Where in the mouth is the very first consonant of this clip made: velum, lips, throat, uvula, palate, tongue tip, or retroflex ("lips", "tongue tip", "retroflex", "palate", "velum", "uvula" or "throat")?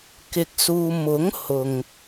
velum